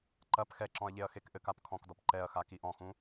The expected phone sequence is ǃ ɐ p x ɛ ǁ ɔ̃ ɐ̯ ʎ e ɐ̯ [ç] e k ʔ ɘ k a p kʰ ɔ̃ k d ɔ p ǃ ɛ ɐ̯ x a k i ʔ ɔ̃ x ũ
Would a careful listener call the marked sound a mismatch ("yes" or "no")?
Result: yes